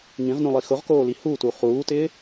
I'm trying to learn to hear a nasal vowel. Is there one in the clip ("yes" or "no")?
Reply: yes